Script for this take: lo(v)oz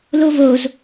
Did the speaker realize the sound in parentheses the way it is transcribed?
yes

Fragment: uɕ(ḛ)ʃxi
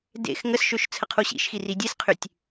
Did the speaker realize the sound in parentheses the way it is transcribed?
no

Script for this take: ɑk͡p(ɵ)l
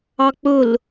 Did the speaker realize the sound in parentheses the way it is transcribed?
yes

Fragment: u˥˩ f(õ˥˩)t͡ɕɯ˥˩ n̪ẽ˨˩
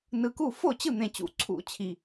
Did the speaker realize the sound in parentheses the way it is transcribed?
no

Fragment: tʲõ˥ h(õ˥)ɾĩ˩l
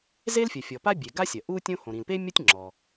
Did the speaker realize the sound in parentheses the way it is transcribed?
no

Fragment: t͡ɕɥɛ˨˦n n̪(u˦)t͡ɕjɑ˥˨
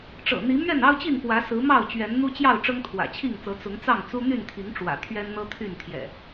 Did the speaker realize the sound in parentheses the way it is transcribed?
yes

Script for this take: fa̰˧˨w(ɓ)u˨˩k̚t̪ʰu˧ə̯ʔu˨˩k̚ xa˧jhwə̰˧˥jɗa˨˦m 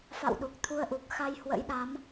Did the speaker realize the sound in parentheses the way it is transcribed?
no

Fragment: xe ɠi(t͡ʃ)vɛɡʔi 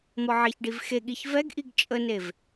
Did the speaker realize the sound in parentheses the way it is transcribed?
no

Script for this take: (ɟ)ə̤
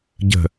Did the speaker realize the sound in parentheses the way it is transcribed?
yes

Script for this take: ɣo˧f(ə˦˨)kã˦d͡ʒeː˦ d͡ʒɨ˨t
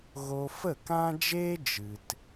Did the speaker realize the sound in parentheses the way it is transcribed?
yes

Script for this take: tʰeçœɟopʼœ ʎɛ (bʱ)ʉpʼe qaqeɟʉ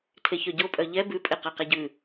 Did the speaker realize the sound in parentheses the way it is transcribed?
no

